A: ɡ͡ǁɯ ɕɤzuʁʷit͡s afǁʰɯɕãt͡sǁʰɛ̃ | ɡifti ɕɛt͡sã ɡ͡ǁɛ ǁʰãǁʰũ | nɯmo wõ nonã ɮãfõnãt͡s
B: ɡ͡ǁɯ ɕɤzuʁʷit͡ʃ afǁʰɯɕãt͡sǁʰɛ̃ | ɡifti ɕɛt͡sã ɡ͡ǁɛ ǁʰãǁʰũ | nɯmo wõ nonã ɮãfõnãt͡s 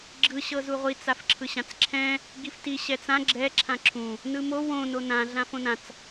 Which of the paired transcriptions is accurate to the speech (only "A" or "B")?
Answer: A